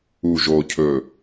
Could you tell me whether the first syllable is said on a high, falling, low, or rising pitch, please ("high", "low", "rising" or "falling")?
low